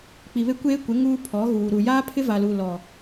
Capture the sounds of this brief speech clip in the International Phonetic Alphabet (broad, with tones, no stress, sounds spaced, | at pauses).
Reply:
k͡p i˨ β e˦ kʷ eː˦ kʷ ɪ˨˦ ŋ uː˦ pʰ ɔ˨˦ ɣ uː˨ ɾ u˨ j aː˦ pʰ ɪ˦ v a˨ l u˨ l ɔ˨